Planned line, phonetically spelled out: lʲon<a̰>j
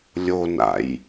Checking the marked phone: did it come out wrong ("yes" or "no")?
no